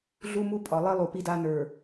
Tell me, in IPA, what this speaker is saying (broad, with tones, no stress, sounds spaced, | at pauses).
ɮ u˦ m u˦ pʼ ɒ˨ lˠ i˦ lˠ u˨ p i˦ d a˦ n ə˞˨